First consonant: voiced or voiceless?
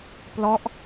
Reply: voiceless